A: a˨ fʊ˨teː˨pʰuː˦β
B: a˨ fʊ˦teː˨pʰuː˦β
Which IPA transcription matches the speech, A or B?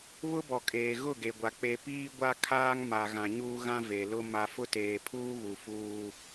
B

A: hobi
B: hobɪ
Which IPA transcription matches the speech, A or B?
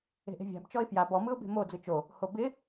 B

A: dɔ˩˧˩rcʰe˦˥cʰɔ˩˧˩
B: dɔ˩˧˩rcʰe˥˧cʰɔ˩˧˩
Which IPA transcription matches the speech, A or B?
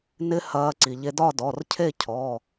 B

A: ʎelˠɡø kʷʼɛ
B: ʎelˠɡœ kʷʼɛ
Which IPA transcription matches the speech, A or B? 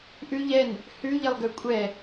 A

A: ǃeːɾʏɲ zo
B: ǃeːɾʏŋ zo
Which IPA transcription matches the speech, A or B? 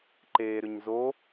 A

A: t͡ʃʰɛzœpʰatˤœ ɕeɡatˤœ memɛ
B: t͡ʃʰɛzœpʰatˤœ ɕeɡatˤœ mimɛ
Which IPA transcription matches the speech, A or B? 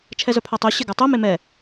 A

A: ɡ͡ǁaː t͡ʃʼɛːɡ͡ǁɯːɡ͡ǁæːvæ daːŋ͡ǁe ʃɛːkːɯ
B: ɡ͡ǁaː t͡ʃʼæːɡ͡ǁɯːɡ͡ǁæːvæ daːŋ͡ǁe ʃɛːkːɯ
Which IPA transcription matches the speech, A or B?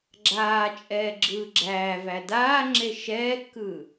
A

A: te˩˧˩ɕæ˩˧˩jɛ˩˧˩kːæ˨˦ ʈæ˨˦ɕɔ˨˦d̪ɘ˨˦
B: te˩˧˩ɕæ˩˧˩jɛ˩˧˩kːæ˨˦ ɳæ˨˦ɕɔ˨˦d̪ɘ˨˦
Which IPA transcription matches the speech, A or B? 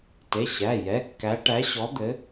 A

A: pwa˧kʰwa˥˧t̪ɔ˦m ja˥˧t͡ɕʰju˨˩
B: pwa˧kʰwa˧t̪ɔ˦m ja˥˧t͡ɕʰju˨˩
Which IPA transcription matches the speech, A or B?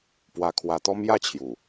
B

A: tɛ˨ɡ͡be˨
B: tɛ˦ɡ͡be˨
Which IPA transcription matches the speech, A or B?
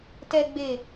A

